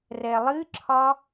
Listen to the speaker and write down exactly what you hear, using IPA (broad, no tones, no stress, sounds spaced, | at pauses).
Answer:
r ɛ lˠ ɨ ǁʰ ɒ